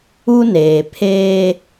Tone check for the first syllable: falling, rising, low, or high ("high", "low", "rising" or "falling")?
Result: high